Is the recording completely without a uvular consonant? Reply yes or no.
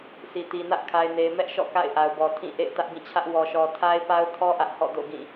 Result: yes